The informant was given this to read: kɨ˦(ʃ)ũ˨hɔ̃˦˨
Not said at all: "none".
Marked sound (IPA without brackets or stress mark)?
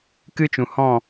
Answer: t͡ʃ